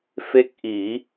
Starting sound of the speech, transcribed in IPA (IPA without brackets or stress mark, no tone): f